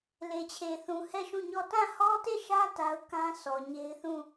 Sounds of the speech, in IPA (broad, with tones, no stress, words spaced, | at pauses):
le˨t͡ɕʰe˨θũ˨ hɛ˦˨ʃũ˦˨ ɲɔ˦˨ tã˦˨hɔ˦te˦˨ʃä˦ ta˦ʊ̯ kã˦ sʰɔ˨ɲe˦ɪ̯ θũ˦˨